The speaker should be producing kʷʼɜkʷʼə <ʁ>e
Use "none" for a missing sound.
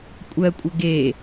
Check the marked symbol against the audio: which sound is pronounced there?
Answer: ɡ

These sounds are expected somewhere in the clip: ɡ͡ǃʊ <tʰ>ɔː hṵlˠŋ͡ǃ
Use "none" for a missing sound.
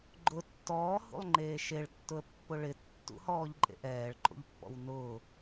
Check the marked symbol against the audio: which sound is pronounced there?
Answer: tː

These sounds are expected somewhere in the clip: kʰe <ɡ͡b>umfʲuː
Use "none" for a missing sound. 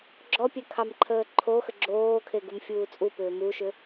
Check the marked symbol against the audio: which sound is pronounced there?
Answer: ɡ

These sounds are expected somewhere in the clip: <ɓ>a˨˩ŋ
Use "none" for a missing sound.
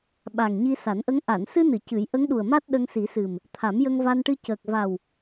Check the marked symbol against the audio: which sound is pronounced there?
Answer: ɓ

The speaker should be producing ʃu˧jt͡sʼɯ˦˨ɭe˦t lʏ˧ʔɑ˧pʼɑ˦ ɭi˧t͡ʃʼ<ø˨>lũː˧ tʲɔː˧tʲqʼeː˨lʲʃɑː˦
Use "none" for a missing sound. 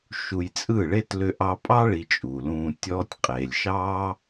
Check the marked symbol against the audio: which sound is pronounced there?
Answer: u˨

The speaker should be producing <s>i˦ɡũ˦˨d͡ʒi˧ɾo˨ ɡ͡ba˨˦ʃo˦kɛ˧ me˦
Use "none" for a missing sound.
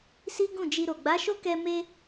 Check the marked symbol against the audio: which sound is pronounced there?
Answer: s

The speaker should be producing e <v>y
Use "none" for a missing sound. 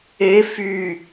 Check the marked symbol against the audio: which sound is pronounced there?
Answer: f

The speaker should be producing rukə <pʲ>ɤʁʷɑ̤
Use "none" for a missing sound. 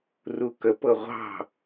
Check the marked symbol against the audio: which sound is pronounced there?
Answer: p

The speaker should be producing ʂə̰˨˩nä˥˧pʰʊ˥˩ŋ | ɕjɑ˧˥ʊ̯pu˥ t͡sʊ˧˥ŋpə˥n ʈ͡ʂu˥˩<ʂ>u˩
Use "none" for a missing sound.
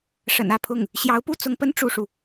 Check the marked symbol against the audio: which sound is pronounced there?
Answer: ʂ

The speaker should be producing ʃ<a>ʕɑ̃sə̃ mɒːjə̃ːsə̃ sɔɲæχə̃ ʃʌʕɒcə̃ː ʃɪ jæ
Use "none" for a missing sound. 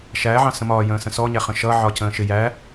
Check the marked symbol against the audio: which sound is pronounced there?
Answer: æ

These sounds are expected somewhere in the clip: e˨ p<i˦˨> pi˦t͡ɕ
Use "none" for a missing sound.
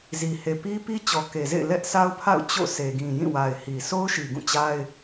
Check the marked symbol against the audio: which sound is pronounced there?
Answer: i˦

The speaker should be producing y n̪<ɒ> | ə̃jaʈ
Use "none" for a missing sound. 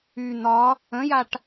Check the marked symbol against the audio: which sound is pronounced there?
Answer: ɒ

